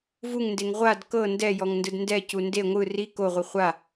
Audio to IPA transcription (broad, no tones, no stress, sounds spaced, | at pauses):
v u ŋ n d e ŋ ʁʷ a d k ɤ n d ɛ j ɔ ŋ n d ɯ d n d ɛ c u n d e ŋʷ ɯ r i k o ʁʷ i χʷ a